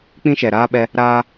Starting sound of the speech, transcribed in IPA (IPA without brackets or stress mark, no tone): k͡p